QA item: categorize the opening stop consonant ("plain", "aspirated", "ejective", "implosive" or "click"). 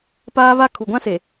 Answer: plain